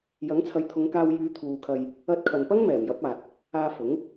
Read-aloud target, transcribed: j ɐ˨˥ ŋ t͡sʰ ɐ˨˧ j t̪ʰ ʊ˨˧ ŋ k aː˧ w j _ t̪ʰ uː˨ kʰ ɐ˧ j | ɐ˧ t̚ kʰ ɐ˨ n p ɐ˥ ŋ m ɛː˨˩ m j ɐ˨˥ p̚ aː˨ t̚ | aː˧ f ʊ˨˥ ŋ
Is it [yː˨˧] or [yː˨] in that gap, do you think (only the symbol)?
yː˨˧